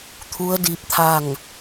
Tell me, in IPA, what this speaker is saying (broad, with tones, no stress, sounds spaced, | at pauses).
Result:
t̪ʰ u˧˥ ə̯ d i˧ p̚ t̪ʰ a˥˨ ŋ